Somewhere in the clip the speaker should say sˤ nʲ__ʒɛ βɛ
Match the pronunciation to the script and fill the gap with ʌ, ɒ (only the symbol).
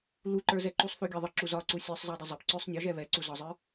ɒ